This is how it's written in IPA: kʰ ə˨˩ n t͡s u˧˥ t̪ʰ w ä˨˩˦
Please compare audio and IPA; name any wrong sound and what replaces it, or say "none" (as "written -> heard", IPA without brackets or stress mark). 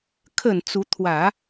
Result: none